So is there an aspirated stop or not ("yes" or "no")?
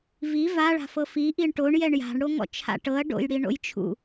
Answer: yes